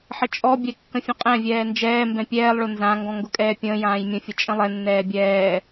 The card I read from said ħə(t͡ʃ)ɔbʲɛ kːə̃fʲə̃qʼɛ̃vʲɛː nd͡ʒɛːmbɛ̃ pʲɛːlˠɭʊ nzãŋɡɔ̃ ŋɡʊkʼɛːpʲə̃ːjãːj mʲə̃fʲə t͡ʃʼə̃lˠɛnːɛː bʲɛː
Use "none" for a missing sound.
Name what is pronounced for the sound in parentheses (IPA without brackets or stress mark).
t͡ʃʼ